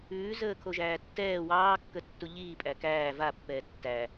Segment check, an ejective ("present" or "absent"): present